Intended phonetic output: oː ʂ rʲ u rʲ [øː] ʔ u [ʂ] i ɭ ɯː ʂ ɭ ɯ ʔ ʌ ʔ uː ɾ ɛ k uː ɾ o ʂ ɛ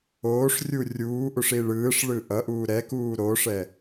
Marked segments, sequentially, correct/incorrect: incorrect: uː, correct

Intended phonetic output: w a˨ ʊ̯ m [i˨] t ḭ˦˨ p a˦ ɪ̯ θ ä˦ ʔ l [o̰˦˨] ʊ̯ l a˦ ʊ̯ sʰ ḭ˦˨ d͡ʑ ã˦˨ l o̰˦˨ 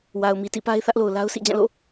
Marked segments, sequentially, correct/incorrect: correct, incorrect: o˨

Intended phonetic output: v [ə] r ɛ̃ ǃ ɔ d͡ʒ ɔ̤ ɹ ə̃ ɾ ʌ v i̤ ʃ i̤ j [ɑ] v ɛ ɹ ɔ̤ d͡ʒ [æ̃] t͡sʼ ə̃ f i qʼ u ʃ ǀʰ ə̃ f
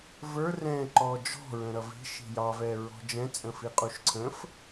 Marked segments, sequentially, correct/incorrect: incorrect: ə˞, correct, incorrect: ɛ̃

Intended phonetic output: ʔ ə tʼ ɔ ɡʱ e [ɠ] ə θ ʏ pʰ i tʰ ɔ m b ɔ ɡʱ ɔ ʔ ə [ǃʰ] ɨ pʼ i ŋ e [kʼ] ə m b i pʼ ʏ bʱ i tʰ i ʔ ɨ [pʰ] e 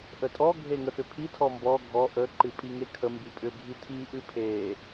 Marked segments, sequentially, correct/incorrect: incorrect: ŋ, incorrect: ǃ, incorrect: kʰ, correct

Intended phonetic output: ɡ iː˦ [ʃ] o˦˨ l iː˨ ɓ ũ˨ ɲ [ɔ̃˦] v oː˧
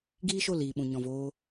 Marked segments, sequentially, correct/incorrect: correct, incorrect: ɔ̃˨

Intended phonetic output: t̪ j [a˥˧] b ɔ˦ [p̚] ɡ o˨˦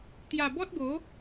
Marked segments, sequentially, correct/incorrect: incorrect: a˨˩, incorrect: t̚

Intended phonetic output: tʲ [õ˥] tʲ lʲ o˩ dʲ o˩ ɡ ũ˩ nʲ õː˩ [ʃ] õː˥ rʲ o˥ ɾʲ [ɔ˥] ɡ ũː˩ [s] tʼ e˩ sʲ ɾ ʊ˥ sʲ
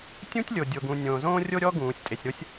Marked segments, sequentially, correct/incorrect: incorrect: ũ˥, incorrect: z, correct, incorrect: sʲ

